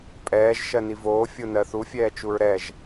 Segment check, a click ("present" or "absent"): absent